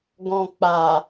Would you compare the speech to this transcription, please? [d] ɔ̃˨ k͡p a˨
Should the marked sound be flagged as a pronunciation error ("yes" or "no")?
yes